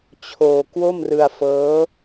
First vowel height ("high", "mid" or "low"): mid